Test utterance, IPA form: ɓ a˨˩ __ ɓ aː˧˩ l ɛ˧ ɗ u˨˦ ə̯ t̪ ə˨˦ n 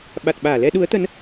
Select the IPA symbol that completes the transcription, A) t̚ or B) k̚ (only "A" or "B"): A